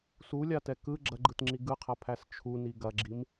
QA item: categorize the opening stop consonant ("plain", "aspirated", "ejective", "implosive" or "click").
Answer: plain